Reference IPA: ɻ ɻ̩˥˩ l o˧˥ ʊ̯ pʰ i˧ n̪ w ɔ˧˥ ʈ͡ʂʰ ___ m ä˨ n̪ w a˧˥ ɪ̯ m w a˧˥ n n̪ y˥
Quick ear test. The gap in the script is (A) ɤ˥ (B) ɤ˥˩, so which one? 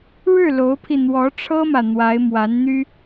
A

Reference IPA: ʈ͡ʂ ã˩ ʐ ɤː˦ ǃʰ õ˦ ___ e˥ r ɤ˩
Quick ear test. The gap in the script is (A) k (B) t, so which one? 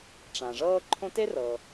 B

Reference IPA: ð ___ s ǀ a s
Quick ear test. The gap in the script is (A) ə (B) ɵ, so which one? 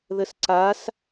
A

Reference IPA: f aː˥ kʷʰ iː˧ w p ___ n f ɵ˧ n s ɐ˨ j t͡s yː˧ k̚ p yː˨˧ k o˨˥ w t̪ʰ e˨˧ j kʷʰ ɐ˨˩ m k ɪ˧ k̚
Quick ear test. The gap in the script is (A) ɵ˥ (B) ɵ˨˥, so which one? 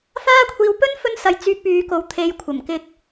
A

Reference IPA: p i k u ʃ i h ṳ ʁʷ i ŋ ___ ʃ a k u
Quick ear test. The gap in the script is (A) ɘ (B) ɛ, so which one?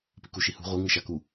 A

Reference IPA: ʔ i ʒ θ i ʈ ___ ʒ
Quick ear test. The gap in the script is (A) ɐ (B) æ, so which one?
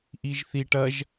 A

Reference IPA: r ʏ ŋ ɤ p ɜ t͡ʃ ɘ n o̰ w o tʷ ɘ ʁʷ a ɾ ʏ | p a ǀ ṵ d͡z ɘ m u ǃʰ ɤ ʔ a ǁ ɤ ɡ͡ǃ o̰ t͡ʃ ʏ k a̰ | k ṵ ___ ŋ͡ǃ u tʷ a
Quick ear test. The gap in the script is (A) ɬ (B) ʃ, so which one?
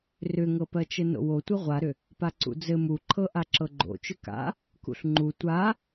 A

